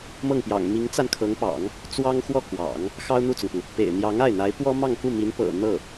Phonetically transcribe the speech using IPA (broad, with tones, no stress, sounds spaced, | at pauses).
m ɤ˥˩ ŋ p j ɑ̰˨˩ ŋ m i˧˥ ŋ t͡s a˧ n kʰ ɤ˧˥ ŋ p ɑ̰˨˩˦ ŋ | t͡s w ɑ˥ ŋ x w ɔ˥˩ k w ɑ̰˨˩˦ ŋ | x ɑ˥ ʊ̯ n̪ u˥˩ t͡s ʊ˩ ŋ p u˩ | p ḛ˨˩ ɪ̯ n̪ j ɑ˧˥ ŋ a˥˩ ɪ̯ n̪ a˧˥ ɪ̯ p w ɔ˥ m ɑ˥˧ ŋ k u˥˩ m i˧˥ n p ɤ̰˨˩ n̪ ɤ˥˩